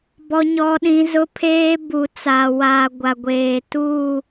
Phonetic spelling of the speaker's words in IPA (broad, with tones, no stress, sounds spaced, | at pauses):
b ɔ˦ ɲ ɔ˦ ɗ ĩ˦ z ʊ˦ pʰ eː˦ b u˨ t͡s aː˨ w aː˨ ɡʷ a˨ ɡʷ eː˨ t u˦˨